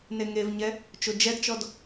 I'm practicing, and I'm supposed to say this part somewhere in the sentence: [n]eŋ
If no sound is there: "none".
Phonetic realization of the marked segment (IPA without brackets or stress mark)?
n